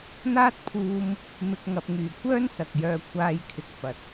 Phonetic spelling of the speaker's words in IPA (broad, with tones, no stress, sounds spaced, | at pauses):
n̪ aː˥ t̚ pʰ uː˧ m | m ɪ˨ k̚ ŋ ɐ˨ p̚ ŋ yː˨˩ kʷ œː˥ n s ɐ˨ k̚ j œː˧ kʷʰ aː˧ j kʰ ɪ˨ k̚ f ɐ˨ t̚